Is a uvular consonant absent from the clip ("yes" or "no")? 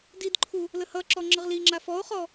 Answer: no